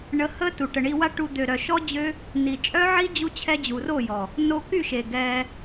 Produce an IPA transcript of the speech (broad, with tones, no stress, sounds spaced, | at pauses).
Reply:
ɳ ə˧ h ə˦ t u˨ ʈ ə˨ ɳ i˧ w a˦ ʈ u˧ d̪ ø˨ ɾ œ˨ ʃ ɔ˦ d͡ʑ ø˦ | n i˨ t͡ʃʼ œ˦ ʕ i˦ d͡ʑ u˧ t͡ɕʰ ɛ˧ d͡ʑ u˨ r o˦˨ j ɔ˨ | n o˧ k y˦˨ ʃ e˨ ɡ ɛ˧